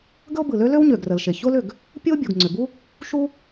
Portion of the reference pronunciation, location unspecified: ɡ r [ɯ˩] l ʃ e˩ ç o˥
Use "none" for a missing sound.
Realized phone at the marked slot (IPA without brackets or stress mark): ə˩